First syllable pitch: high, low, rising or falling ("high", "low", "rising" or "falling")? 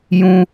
high